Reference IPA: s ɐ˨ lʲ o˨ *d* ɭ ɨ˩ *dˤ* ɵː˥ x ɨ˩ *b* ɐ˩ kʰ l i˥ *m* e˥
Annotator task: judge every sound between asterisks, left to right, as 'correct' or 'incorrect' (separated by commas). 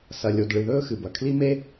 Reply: correct, incorrect, correct, correct